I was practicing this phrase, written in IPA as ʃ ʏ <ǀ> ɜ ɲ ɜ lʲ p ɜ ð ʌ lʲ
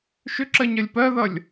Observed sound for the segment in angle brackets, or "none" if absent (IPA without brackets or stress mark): ǁ